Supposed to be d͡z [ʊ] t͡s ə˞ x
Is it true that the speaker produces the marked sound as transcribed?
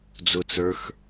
yes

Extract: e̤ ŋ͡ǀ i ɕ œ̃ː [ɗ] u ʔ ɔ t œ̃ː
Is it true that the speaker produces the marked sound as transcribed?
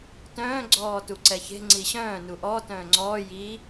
no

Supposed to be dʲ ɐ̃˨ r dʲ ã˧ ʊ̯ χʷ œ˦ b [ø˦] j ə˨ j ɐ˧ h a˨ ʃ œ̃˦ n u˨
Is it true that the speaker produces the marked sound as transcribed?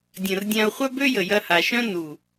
yes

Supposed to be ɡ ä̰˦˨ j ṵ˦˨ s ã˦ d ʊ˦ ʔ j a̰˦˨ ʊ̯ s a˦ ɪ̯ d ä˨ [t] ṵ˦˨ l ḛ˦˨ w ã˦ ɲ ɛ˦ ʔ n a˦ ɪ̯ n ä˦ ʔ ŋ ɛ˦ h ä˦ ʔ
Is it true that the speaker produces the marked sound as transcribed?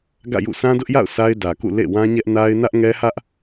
no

